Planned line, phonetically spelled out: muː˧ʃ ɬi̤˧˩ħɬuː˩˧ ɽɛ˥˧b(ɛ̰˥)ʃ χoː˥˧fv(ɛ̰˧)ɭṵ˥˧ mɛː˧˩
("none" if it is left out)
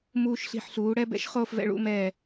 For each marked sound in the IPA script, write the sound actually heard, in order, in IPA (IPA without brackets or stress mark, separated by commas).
ɛ̰˥, ɛ̰˧